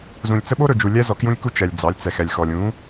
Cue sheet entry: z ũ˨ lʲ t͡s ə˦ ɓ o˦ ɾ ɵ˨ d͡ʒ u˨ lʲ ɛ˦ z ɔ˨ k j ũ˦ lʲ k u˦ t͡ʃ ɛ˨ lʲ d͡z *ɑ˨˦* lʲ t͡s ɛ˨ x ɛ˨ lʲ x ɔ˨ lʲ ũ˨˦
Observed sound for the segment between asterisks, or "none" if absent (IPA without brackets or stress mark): ɑ˨˦